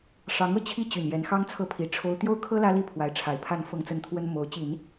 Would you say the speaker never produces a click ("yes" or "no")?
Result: yes